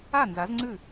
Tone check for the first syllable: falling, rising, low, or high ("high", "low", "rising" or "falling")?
falling